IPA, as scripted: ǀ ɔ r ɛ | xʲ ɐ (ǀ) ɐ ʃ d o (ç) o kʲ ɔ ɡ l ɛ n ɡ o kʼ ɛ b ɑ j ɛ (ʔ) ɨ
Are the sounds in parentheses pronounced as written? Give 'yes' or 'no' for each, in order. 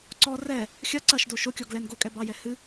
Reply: yes, no, no

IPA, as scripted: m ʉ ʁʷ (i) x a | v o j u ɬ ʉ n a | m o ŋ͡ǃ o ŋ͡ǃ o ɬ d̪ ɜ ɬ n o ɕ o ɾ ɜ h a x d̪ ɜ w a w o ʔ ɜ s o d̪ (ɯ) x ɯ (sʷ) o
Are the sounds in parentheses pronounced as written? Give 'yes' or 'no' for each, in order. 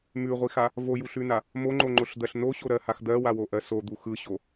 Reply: yes, no, no

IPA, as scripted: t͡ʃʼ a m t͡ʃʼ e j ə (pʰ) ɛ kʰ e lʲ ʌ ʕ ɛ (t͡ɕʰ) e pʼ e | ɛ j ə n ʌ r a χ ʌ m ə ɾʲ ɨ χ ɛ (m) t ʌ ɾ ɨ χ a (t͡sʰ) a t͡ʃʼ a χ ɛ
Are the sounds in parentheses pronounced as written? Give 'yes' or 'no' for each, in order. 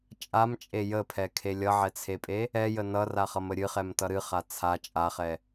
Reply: yes, no, yes, yes

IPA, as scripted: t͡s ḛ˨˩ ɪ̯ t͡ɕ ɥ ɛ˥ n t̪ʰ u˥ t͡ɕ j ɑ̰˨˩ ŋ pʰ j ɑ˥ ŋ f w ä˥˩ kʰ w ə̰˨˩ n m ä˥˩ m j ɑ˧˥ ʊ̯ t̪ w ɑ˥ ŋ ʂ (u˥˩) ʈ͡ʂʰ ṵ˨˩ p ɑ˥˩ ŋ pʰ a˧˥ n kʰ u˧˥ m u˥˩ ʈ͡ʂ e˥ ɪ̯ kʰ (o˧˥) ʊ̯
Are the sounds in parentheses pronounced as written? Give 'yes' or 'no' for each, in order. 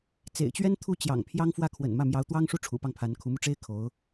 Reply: yes, yes

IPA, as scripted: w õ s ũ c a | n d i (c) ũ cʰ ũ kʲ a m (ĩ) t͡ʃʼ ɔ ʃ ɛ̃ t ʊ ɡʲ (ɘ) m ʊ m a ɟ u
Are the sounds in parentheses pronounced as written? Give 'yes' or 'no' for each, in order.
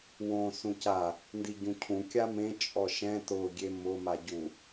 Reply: no, no, no

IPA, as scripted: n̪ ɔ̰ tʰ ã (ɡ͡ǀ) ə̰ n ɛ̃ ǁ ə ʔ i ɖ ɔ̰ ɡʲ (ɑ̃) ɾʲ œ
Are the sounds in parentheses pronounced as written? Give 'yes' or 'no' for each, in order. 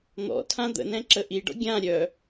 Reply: no, no

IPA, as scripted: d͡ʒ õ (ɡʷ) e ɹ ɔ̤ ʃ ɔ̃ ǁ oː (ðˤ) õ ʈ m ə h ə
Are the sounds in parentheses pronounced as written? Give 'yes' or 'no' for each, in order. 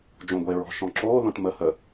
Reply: yes, no

